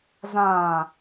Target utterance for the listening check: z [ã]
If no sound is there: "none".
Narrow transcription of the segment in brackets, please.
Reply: ã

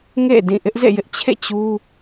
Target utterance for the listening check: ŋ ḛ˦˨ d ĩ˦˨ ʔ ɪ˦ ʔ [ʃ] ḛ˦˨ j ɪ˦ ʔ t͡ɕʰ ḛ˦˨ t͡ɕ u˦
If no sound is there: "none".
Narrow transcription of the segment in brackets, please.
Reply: z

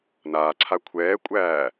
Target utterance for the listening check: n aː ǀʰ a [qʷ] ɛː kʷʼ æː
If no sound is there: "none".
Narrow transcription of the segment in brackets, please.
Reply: kʷʰ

